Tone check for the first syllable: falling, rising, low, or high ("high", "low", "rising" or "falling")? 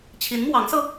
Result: rising